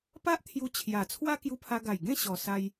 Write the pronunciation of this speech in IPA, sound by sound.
p a˦ ʔ t̪ʰ j u˧ t͡ɕʰ j a˨˩ t͡sʰ w a˦ k j u˧ pʰ a˧ ɡ a˨˩ j ɡ ẽ˥˧ ɕ ɔ˨˩ s a˧ j

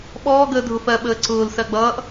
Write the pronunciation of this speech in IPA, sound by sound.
ɓ ɔː ɡ əː dʱ ʊ f ɜ ɓ əː ǀ ʊː l s ɜ ɡ͡b ʌː ʔ

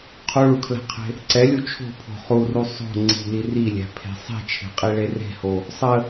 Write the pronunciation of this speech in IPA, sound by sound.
qʰ u ɭ u kʰ l æ̤ qʰ e̤ | ǀ ɛ lʲ u t͡ʃʰ o̤ pʰ o̤ χ u r u sˤ o̤ ŋ͡ǀ i̤ l i r i lʲ æ̤ pʰ e̤ sˤ i̤ t͡ʃʰ e̤ qʼ i ɭ e r e̤ h o | sˤ ə

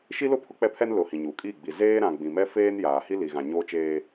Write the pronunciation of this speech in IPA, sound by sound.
ʃ i˦ l ʊ˦ pʰ ʊ˦ k͡p ɛ˦ pʰ ɛ˦ n l ʊ˨ h ĩ˨ ɲ uː˨ kʼ iː˦˨ ɡ͡b i˨ z eː˦ ɾ ã˨ ɡ͡b ĩ˨ m ɛ˦ f eː˦ n j aː˨ h i˦ l i˨ ɣ ã˨ ɲ oː˦ t͡ʃ eː˦

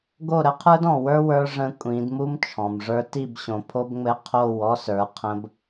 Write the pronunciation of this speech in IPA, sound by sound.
ɡ o˦˨ ɾ ə˦ qʰ ə˞˦ d ɔ̃˨ w ə˞˦ w ə˞˦ ʐ ə̃˦ kʷʼ ĩ˨˦ d m u˦ m t͡ʃʰ ɔ̃˨ m ʐ ə˞˦ t i˦˨ b ɕ õ˨ pʰ o˦ b ŋ͡m ɘ˦ qʰ o˦˨ w ɔ˦ s ə˞˨˦ qʰ ə̃˦ b

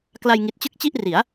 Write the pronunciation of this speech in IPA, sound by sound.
k l a˧ j ŋ i˨˩ t̚ t͡ɕ ɯ˦˥ k̚ t͡ɕ i˥˩ ʔ r i˩˦ a̯

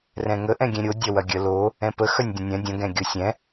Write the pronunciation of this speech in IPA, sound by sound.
r ɛ̃ ŋ ə ʔ ɛ̃ ɡʲ ɛ̃ ɾʲ o dʲ ɐ w ɐ ɡʲ ə l o | ɛ̃ p ə x œ nʲ dʲ ə̃ nʲ œ̃ dʲ ə̃ ɡ ɛ̃ ɡʲ o sʲ ɛ̃

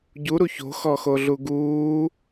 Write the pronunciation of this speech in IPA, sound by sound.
ɟ u ɾ u ç o̤ x ɔ x o ɮ u ɡ uː

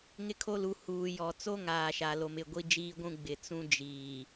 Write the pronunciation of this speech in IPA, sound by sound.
ŋ ɪ˦ kʰ o˦ l u˨˦ h uː˨ j ɔ˨ t͡s o˦ ŋ aː˨ ʃ a˨ l o˨ m ɪ˦˨ ɡʷ i˦ d͡ʒ iː˦ ɡʷ ũ˦ ɡ͡b ɪ˨ t͡s ũ˦ d͡ʒ iː˨

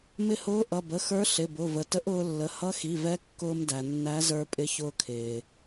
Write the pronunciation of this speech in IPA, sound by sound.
m ɪ˧ h ʊː˧˥ ʔ ʌ˩˧˩ b ə˩˧˩ x ə˞˧˥ ɬ ɪ˩˧˩ b ʊ˩˧˩ v ə˩ t ə˧˥ ʔ ʊː˧ lː ə˩˧˩ h ʌ˧˥ x i˩˧˩ v ɛ˧˥ kː ʊː˧ m d æ˩ nː æ˧˥ z ə˞˧ pʼ ɪ˧˥ ç ʊː˧ kʰ ɪː˩

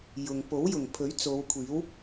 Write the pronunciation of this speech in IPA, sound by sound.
j ʊ˨ ŋ p o˨˥ w j ʊ˨˩ ŋ pʰ ɵ˨˥ ɥ t͡s o˨˧ w kʷʰ iː˨˥ w

